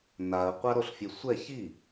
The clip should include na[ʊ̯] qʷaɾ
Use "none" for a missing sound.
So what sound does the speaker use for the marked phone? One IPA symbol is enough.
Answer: ə̯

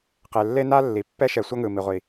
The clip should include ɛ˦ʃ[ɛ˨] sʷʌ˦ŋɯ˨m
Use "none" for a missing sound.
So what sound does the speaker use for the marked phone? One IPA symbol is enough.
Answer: ɛ˨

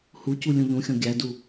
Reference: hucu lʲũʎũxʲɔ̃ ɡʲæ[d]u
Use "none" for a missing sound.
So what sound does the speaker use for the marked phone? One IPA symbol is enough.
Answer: d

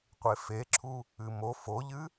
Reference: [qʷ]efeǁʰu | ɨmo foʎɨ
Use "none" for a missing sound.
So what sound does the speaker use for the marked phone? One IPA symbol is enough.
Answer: qʷ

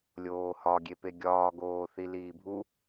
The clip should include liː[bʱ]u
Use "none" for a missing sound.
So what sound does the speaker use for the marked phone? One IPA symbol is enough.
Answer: bʱ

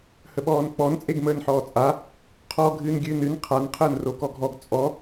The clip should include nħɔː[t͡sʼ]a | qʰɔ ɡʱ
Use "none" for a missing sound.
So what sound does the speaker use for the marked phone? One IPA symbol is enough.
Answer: t͡sʼ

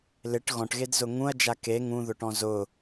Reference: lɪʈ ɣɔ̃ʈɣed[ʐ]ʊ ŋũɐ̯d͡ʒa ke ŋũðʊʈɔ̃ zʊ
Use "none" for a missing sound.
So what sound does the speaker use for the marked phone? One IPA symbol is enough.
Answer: z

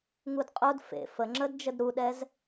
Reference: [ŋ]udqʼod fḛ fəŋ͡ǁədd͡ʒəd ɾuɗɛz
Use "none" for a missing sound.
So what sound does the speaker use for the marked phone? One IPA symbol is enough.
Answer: ŋ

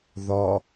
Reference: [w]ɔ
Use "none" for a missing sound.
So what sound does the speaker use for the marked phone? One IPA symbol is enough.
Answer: ð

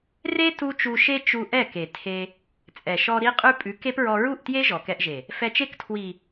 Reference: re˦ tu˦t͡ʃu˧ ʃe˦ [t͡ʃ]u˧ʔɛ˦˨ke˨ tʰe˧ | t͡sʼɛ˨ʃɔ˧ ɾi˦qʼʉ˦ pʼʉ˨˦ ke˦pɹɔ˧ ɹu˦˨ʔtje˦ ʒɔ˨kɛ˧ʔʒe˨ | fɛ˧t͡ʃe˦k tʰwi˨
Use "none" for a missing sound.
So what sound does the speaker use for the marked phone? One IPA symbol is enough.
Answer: t͡ʃ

